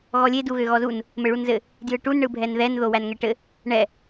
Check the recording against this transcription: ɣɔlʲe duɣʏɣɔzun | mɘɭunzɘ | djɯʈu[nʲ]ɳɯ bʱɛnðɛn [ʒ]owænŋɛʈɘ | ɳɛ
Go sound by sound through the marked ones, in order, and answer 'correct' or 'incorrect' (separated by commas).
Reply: incorrect, incorrect